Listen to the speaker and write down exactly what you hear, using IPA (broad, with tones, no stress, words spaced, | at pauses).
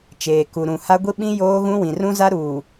t͡ʃeː˨ku˨ɾũ˨ha˦ ɡʷi˦ɓĩ˦ joː˦ɣũ˦ wĩ˨rũ˦za˦ ɾuː˨